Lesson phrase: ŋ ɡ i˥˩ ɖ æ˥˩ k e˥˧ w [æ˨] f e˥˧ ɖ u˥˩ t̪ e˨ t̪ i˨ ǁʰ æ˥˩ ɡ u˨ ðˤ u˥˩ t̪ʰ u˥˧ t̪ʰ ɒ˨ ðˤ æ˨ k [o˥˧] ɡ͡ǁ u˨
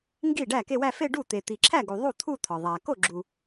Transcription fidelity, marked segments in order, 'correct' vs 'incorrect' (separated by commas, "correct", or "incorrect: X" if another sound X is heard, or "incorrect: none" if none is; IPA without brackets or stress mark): incorrect: æ˥˧, incorrect: o˥˩